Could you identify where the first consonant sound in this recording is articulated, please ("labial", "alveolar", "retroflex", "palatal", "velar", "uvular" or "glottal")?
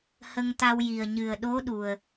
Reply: glottal